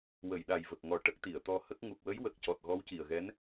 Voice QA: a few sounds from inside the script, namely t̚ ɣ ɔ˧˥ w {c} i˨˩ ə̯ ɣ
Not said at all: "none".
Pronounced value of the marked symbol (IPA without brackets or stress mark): c